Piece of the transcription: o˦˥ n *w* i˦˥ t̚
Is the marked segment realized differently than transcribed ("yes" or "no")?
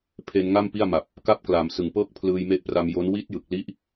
no